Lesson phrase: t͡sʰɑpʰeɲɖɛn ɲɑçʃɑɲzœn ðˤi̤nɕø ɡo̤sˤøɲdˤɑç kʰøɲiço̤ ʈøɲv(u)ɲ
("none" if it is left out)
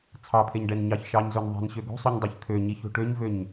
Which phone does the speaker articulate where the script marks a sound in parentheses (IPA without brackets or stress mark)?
ø